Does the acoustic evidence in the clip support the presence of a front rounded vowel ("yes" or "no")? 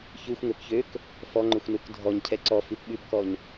yes